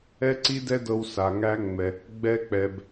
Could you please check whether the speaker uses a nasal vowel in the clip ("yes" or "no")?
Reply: no